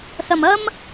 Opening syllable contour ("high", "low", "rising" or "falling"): low